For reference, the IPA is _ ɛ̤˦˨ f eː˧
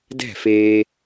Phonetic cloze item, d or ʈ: d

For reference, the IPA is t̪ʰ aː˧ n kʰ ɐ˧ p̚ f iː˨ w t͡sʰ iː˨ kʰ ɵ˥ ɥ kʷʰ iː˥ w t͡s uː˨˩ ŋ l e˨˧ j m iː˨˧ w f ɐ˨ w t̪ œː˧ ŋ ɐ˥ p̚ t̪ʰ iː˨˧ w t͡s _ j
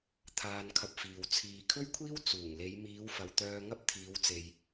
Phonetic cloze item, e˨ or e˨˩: e˨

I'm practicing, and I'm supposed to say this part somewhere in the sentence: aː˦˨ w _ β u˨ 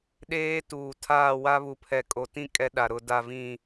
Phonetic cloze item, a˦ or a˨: a˦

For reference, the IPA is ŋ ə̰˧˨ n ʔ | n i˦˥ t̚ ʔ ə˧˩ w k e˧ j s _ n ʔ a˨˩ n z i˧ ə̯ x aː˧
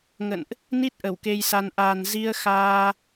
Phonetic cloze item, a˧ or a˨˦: a˧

